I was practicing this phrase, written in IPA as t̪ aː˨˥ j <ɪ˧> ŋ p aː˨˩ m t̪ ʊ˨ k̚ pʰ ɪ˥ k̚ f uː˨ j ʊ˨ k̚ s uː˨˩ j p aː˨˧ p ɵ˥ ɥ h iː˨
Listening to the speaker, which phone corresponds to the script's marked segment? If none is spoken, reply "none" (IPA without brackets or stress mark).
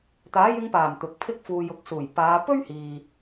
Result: ɪ˧